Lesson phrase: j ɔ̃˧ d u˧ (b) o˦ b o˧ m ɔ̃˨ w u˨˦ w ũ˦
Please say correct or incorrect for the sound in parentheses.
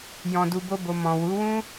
correct